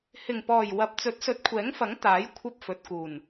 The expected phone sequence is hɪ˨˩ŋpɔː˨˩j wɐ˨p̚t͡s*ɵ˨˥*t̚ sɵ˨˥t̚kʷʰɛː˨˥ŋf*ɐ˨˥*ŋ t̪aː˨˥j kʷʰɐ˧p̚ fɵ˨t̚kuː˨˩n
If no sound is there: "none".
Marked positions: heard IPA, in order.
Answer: ɵ˨˥, ɐ˨˥

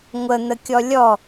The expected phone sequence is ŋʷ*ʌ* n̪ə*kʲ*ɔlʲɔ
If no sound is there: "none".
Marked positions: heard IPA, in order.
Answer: ə, kʲ

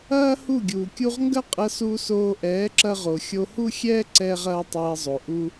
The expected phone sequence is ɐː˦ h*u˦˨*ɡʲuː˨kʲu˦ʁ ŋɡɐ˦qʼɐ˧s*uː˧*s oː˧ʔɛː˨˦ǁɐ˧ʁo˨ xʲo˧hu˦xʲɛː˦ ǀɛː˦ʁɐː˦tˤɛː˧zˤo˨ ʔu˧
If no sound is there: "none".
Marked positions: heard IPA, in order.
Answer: u˦˨, uː˧

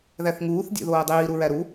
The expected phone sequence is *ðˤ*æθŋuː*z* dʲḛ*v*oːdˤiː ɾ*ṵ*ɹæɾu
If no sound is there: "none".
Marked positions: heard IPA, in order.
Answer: ð, θ, ð, u

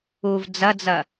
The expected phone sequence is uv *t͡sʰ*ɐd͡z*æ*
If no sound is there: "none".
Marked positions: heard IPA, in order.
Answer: d͡z, ɐ

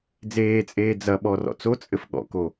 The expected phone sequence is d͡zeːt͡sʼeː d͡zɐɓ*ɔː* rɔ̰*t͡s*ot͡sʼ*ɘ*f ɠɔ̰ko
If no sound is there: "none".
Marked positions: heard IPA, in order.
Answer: ɔ, t͡s, ɘ

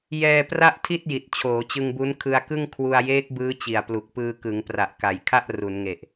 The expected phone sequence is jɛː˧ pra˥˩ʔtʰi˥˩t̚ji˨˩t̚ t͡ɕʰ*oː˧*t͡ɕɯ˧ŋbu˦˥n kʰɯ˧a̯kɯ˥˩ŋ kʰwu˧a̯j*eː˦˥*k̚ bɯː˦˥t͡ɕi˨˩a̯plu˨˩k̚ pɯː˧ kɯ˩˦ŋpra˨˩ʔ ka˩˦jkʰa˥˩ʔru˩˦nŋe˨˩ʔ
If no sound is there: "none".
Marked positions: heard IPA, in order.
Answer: oː˩˦, eː˦˥

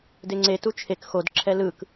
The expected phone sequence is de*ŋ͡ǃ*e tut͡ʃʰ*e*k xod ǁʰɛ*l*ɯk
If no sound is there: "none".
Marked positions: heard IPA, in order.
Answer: ŋ͡ǀ, e, l

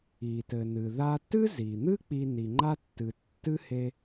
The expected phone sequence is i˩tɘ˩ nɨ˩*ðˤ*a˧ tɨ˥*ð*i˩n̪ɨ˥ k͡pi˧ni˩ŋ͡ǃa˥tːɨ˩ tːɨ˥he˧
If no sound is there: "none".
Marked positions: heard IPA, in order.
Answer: ð, z

